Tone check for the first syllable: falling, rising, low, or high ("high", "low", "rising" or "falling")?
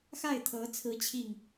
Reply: falling